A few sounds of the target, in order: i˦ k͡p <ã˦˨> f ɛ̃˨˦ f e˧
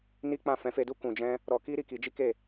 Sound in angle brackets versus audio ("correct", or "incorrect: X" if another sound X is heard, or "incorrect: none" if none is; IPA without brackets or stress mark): correct